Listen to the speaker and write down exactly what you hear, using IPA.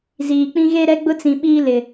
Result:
z iː˨ k͡p ĩ˦ ɣ e˦ ɾ ɛ˦ ɡ͡b ʊ˦ t͡s ĩ˨ ɓ iː˦ l ɪ˨

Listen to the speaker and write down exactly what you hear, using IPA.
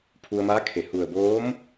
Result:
pʰ u˧ ə̯ m aː˧˥ kʰ e˧˩ h u˧˩ ə̯ b oː˧˥ m

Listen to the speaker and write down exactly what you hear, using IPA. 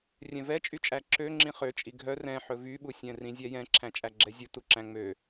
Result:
rʲ ɛ̃ v ɛ t͡ʃʼ y t͡ʃʼ æ ǁ ø ŋ͡ǁ ĩ χ ø t͡ʃʼ i ɡʱ œ r ɛ̃ ħ ɵ v y ɓ u sʲ ɛ̃ r ĩ zʲ ɛ j ɛ̃ ǁʰ æ̃ t͡ʃʼ æ ɡ͡ǁ ɛ zʲ u t u ǁ æ̃ ŋ͡m ø

